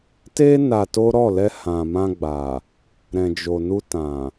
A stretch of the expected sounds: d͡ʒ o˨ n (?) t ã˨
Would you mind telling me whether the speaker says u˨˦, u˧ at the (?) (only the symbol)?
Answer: u˧